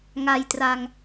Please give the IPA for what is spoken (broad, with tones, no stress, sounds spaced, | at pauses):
ŋ a˧ j t r a˧ ŋ